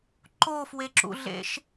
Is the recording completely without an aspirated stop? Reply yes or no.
yes